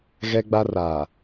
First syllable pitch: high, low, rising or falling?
high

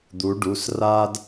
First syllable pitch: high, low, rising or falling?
rising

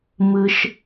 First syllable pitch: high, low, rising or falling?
low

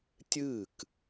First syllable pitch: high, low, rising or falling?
falling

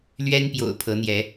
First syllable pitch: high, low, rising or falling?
high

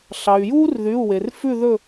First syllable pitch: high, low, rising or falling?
low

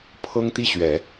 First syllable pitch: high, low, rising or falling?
high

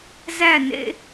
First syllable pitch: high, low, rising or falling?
falling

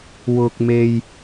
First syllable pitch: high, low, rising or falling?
high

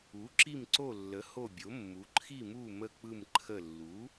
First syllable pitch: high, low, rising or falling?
rising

